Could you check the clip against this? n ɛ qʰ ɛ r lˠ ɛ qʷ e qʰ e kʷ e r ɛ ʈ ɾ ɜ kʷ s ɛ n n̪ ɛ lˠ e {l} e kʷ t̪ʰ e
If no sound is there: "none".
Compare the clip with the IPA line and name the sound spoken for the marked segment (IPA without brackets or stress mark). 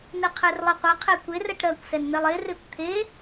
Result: r